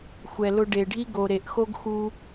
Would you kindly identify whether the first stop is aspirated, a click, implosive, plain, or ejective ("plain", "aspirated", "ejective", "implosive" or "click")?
plain